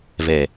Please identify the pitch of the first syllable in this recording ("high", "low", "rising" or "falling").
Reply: low